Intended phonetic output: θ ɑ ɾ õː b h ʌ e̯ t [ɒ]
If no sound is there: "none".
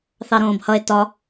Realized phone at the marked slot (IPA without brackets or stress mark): ɒ